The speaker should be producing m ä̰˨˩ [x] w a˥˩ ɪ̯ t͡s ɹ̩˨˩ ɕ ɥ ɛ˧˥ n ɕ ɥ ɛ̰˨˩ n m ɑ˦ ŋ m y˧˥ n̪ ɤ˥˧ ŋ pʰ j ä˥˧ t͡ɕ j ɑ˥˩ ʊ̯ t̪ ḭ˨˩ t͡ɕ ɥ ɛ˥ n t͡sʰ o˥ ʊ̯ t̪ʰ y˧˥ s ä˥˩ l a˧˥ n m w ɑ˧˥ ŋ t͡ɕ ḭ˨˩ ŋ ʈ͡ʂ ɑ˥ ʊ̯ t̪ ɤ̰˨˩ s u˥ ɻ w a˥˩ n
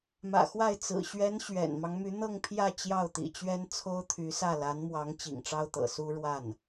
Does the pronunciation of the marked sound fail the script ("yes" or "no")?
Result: no